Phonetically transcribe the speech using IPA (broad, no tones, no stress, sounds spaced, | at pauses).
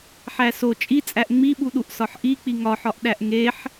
ħ æ s o t͡ʃʼ i t͡sʼ æ ʔ ŋ͡m i ɓ u ɗ u ʔ s ɒ ħ ʔ i k͡p i ŋ ɒ ħ ɒ ʔ ɗ æ ʔ ŋ e ħ